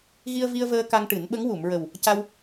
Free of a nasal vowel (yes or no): yes